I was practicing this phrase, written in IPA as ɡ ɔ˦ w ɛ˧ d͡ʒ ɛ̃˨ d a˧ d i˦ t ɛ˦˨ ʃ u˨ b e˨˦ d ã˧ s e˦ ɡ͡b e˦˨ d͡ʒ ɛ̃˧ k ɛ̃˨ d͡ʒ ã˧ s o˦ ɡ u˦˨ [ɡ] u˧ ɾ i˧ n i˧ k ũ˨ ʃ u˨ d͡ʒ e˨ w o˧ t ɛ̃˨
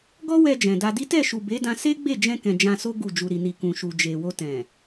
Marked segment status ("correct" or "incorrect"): incorrect